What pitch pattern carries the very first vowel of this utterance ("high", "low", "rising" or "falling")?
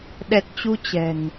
low